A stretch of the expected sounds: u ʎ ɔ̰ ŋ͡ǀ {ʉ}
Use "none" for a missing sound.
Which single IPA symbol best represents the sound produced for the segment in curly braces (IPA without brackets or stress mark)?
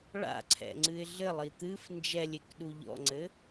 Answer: ɘ